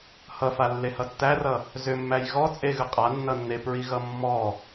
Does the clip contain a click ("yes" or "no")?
no